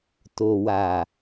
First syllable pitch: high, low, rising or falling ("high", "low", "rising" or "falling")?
low